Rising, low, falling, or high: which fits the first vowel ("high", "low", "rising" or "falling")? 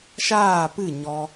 falling